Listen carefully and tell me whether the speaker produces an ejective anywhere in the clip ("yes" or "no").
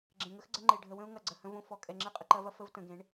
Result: yes